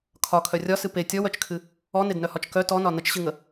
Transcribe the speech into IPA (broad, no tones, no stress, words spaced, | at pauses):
kʰɒkʰœ rʲɒsɨ pe tʲɔwœt͡ʃkʰɨ | ɔnednœhɒt͡ʃ kœ tɔnɒ nət͡ʃɕɨŋə